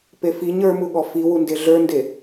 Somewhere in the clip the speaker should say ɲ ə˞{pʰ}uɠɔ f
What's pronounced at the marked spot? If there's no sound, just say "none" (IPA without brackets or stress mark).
m